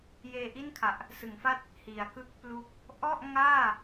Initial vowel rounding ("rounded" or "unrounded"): unrounded